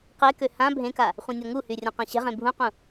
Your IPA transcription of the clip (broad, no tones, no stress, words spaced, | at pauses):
qekø hã bʱẽka | χʷẽnʲɔŋuhy rʲɔ̃qãɕɛ̤ʁẽ bʱũqũ